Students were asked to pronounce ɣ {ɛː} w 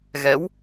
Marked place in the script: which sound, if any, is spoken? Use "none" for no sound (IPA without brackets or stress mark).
ɛ